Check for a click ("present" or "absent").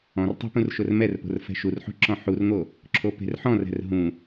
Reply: present